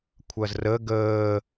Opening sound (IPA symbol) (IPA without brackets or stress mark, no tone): kʷʰ